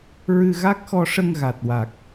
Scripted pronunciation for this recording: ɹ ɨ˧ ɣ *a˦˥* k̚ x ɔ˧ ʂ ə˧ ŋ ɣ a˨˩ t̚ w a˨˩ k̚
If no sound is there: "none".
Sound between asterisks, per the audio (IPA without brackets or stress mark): a˦˥